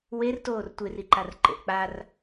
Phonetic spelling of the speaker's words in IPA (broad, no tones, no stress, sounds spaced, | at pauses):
w e r t oː r tʷ e r i ǃ a r ǃ ḛ ʔ k͡p a r